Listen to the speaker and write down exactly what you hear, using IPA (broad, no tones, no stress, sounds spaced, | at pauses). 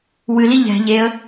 w ɨ l i ʎ ɛ̤ ʎ e ə̯